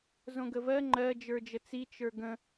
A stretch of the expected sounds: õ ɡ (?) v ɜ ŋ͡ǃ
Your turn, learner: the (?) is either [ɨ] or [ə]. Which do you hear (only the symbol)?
ə